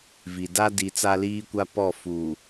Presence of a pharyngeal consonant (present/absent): absent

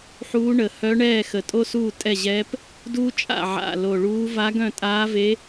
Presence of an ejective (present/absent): present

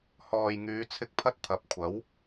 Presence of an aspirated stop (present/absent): present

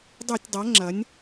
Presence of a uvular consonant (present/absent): absent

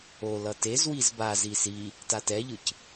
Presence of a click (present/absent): absent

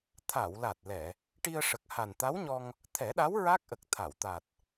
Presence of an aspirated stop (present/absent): present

